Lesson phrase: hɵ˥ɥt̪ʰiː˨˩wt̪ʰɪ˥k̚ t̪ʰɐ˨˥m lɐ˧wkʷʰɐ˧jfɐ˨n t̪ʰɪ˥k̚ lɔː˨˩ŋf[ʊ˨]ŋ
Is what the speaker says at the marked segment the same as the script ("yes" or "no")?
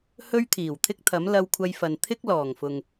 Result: yes